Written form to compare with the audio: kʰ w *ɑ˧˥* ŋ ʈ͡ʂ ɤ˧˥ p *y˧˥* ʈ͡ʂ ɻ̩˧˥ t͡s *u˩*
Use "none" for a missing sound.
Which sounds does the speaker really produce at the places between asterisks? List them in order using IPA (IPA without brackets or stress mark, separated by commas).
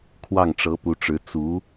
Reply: ɑ˥˩, u˧˥, u˧˥